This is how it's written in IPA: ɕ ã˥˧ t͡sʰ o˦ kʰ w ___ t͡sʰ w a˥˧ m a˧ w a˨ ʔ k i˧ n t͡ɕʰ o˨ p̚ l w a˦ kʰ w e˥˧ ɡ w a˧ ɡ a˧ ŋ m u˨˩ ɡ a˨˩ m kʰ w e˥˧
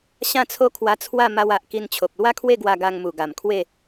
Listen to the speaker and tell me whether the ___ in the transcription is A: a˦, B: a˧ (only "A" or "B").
B